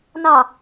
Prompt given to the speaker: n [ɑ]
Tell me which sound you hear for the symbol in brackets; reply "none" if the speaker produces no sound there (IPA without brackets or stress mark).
ɑ